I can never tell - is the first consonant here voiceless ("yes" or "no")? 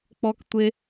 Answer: yes